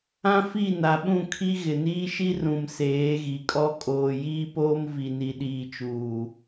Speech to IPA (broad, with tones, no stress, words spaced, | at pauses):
ã˦fi˦˨ na˨ɓũ˦˨kʰi˦ ɣɪ˨niː˦ʃi˦ rũ˨m seː˨˦ɣi˨kʼɔ˦ kʼoː˨ jiː˦poː˦m vi˨ni˨ ɗiː˨t͡ʃuː˨